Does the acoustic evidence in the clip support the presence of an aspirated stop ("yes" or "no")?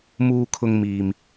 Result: yes